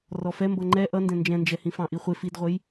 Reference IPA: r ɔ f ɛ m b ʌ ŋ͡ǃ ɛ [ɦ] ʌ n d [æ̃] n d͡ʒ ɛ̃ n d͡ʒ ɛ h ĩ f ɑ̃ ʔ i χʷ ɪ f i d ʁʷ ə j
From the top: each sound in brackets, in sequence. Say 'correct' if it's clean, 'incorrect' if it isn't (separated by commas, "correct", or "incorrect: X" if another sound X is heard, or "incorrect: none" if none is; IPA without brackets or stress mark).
incorrect: ʔ, incorrect: ɛ̃